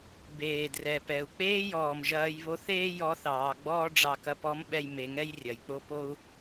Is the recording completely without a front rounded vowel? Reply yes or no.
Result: yes